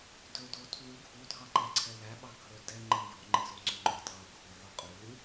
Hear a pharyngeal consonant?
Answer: yes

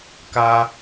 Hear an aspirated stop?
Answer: no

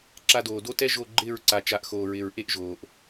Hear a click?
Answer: yes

